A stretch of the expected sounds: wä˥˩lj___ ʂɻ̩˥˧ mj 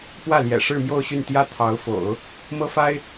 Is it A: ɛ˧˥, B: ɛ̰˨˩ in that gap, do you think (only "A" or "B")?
B